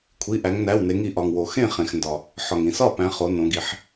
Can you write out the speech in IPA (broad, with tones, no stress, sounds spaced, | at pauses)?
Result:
kʷʰ i˩˧˩ ʔ æ˩˧ ŋ n æ˩˧˩ w n e˩˧ ŋ i˩ ʔ ɒ˩ ŋ w o˩ x ẽ˥˩ χ ẽ˩ x n d ɒ˩ | ħ ɒ˩ ŋ ĩ˩ s ɒ˥˩ p æ̃˩˧ χ o˩˧ n õ˩˧ ɡ i˩˧ ħ